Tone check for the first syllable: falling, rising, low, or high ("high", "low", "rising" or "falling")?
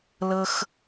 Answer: high